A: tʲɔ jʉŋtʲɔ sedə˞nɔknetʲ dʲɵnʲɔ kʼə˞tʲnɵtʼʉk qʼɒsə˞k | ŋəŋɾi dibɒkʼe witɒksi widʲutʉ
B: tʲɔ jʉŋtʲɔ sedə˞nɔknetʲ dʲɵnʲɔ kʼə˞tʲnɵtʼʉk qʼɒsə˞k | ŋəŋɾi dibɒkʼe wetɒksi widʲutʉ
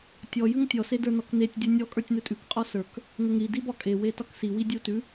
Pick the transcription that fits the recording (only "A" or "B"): B